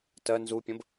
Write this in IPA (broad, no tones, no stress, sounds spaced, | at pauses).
t ɜ n z u pʲ ə̃ b